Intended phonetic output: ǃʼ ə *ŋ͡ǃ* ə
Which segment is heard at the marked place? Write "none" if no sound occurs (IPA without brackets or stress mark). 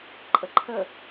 ǃʰ